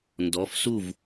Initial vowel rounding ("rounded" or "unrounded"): rounded